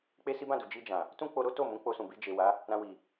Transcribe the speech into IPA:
k͡p e˦ s i˦ b ã˦˨ d u˨ d͡ʒ i˧ d͡ʒ ã˨ | t ũ˦ k͡p o˧ ɾ o˦ t o˦˨ m ũ˨˦ k͡p o˧ s ũ˨ b i˧ d͡ʒ e˨ w a˨˦ | ɾ ã˧ w i˨

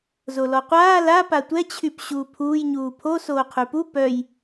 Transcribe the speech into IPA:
z o l ɔ qʷ aː l a p a tʷ ɛ t͡ɕʰ y p ɕ uː pʰ uː j ɲ uː pʰ o s oː qʰ y p u p œ j

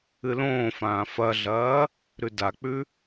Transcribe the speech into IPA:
ɨ l õː f ãː f ɐ ɮ ɐː | ɾ ʉ d a k͡p ʉ

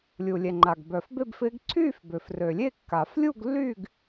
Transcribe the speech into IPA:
lʲ u˨ lʲ ɛ˨ ŋ͡ǃ a˨ ɡ b œ˨ f b e˥˧ b f ɪː˦˥ ɡ ǀʰ yː˥˧ f b ø˨ f r ø˨ lʲ e˥˧ kː a˨˩˦ f lʲ u˥˧ ɡ lː yː˥˧ ɡ

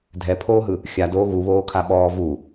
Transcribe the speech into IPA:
dʱ ɛ pʰ oː ɦ ɯ | xʲ a d oː ɣ u β oː kʰ a ɓ ɔː v u

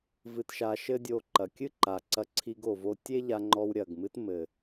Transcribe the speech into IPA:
v ɨ˧ t ʃ a˧ ʃ ɘ˦ dʲ o˧ ǃ ɐ˨ kʲ ɨ˦ ǃ a˨ ǀ ɐ˧ ǀʰ i˧ ɡ o˨ v o˧ tʲ e˦ ʎ a˧ ŋ͡ǃ ɔ˧ w ɾʲ ɐ˨ ɡ m ɨ˧ t m ɘ˨

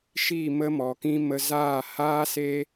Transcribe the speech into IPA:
ʃ i˦˨ m ə˦ m ɔ˨ k ĩ˦ m ə˧ z aː˦˨ h aː˦ s e˦

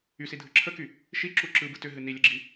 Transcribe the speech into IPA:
y s i dʱ ɯ ǁʰ ə k y | ʃ i ǁ u ǁ ɯ b ɯ t ʏ ɦ ɨ n i lʲ ə ɡ͡ǁ i

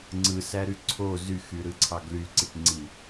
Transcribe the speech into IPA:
ŋ͡ǀ ɯ s æ ɾ y ǀʰ o z y x y ɾ ɯ ǀʰ ɑ ɡ l y ǀ i ʈ ŋ͡ǀ i

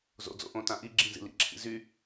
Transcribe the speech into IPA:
z o̰ d͡z o̰ ʔ õ t ã ʔ i ɡ͡ǁ ĩ z ḭ l ḭ ǁʰ ḭ z y

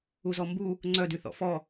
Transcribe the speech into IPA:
u z ɔ m b u | ŋ͡ǀ œ d y θ ɔ̰ f ɔ

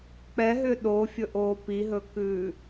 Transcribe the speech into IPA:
k͡p ɛ ɦ ʏː ɗ o fʲ ɵ ʔ oː p i ɦ ɵː k ʉː

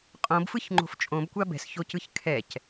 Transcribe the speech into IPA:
qʼ õ b f ɯ ç ŋ͡ǃ o̤ f t͡ʃʼ õ b kʷ a b ɛ̤ s ç o c ɯ ç kʰ ɛ c

